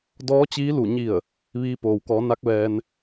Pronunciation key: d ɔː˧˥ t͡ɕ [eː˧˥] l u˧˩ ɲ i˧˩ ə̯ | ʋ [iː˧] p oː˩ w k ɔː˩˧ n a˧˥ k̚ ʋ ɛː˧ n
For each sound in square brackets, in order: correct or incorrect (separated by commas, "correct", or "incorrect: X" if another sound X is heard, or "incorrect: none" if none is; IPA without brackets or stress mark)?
incorrect: iː˧˥, correct